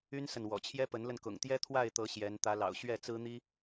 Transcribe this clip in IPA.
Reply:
y˦ n s ə˨ n w ɔ̰˨˩ t͡ɕʰ j ɛ˦ p ə˨˦ n l ə˧ n k ʊ̰˨˩ ŋ t̪ j ɛ˦ t̪ʰ w a˥˨ ɪ̯ t̪ ɤ˨˦ ɕ j ɛ˨˦ n t̪ ä˨˦ l ɑ̰˨˩ ʊ̯ ɕ ɥ ɛ˥˨ t͡s ɹ̩˦ n̪ i˦

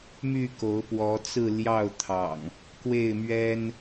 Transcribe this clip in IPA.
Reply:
m y˥˨ k o˨˦ ʊ̯ p w ɔ˨˦ t͡s ɹ̩˥˨ l j ɑ˥˨ ʊ̯ t̪ʰ ɑ̰˨˩ ŋ | k w e˥˨ ɪ̯ m ɥ ɛ˦ n

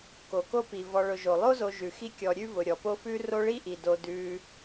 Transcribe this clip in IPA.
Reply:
k o˩ k o˥ p i˩ v ɔ˨ ɭ ʊ˨ ʒ o˩ lˠ o˥ z o˨ ʒ ʉ˩ x i˦ kʲ ɔ˨ ɾʲ ʉ˦ v ʊ˩ ɾʲ ɔ˩ p o˦ f ʉ˥ r o˦ ɭ i˥ ʔ i˩ d o˨ d ʉ˨

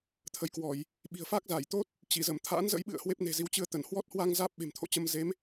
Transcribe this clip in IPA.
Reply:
t̪ʰ ə˨˦ j k w ɔ˧˩˨ j | ɓ i̤˨˩ ə̯ f a˦˥ k̚ z aː˧˩ j t̪ o˦˥ t̚ | t͡ɕ i˧˩ z ə˧˩ m t̪ʰ a̰˧˥ n z ə̰˧˥ j ɓ ɨ̰˧˨ ə̯ h w e˦˥ p̚ n e̤˨˩ z i˨˦ w t͡ɕ ɨ˧ ə̯ t̪ ə˧˩ n h w ɔ˦˥ t̚ h w a˧ ŋ z aː˦˥ p̚ ɓ e̤˨˩ m t̪ʰ o̰˧˨ t͡ɕ ə˧ m z e˨˦ m

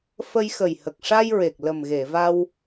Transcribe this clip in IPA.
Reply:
f ə˧ j x ə˨˩ j h ə˨˩ k̚ ʂ a˧ j ɹ e˨˩ k̚ l ə˨˩ m ɣ e˨˩˨ v a˧ w

